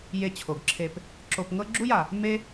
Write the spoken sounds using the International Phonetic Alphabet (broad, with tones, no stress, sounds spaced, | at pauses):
j e˨ t͡ɕʰ o˩ ɡ ǁʰ e˨ p | ǁ o˨ p ŋ ɤ˦ ɡ͡ǁ u˦ j a˩ | m e˦